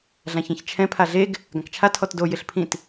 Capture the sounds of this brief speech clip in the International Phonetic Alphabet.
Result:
ɮ ã ç ɛ̃ ç t͡ʃʰ ɛ̃ pʰ a ɮ e ɡ | ɡ ã k t͡ʃʰ a tʰ ɔ t d o j ɪ ɬ pʰ ĩ t

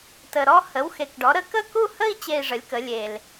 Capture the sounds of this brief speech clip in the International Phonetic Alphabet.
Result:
t ə˨˩ ɾ ɔ˥˧ h ə˩˥ w x e˨˩ k ɖ ɔ˩˥ ɾ ə˥˧ k ə˥˧ k u˥˧ h ə˥˧ i̯ t͡ɕ e˥˧ i̯ ʐ ə˩˥ lʲ k ə˩˥ lʲ e˨˩ l

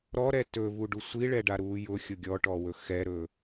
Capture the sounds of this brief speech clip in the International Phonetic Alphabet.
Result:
ɾ ɔ ɾ ɛ t ɵ v u ɖ u sʷ i ɭ ɛ ɖ a ɾ uː j ʊ xʲ ʊ ɡʲ ɔ ʈ ɔ w ɵ x ɛ ɾ ɵː

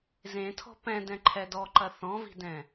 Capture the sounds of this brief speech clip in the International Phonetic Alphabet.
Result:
z ẽ tʰ ɔ̤ p ɛ̃ d ɛ̃ ǃʰ ɛ d ɔ ǃ ɐ θ ɔ̃ v i̤ d ɛ̃

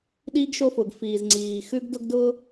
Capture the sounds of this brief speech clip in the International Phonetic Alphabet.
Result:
ɗ iː˥ ɡ ʃ o˥ f ʊː˩ ɡ f iː˩ z ŋ͡ǀ iː˩ x ʉ˥ ɡ d ʊ˥ ɡ d ʊː˥

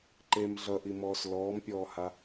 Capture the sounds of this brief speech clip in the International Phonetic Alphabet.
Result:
ǃ e m ɮ ʌ ʔ i m ɔː s l ɔː m pʲ ɔː h a

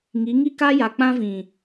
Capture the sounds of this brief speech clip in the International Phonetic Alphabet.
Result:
ŋ i˨˦ ŋ i˦ k a˦ j a˨ k͡p ã˦ v ĩ˨

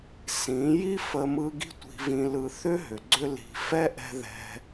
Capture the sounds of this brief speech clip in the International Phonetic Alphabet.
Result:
s ĩ˨˦ j i˦ f ə˧ m ɯ˧ ɡ i̤˦ tʷ i̤˧ v ĩ˧ l ɯ˧ θ ʏ˦ ɦ ʏ˨ ɡ͡ǀ ʏ˦ l i̤˧ f ɛ˦ ʔ ɛ̤˧ ð ɛ̤˧

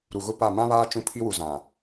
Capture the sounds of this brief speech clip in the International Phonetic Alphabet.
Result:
ɾ u˨ ɣ ʊ˦ p a˦˨ m ã˦ β aː˦ t͡ʃ ũ˦ pʰ i˦ w u˨ z ã˨

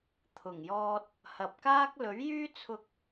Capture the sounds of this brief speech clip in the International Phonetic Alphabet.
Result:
t̪ʰ ʊ˨˩ ŋ j ɔː˧ t̚ | h ɐ˨ p̚ k aː˥ k̚ l ɵ˨˥ ɥ j yː˥ t͡sʰ ʊ˧ k̚

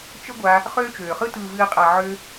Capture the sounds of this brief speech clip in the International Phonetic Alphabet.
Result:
t͡ʃ ə˦ ɡʷ a˧ | χ øː˦ t͡ʃ øː˨ χ ɯ˦ t ɯː˨ v ɨː˨ qʼ a˨ ʕ ø˧

